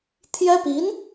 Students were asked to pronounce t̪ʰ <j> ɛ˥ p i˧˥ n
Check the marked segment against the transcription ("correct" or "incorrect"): correct